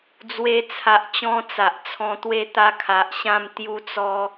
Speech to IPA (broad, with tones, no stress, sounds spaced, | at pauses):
d͡z w e˧ t͡sʰ a˨ ʔ t͡ɕ ɔ̃˧ t͡s a˨ ʔ t͡sʰ ɔ̃˧ t̪ w e˥˧ t̪ a˦ kʰ a˨ ʔ ɕ ã˥˧ m t̪ j u˧ t͡s ɔ˧